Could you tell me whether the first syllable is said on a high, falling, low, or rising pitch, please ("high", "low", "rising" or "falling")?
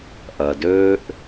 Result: low